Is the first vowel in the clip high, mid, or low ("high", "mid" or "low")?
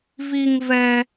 high